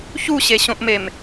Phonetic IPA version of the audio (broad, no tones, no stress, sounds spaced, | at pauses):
ç u ɕ e ɕ õ ʔ m e m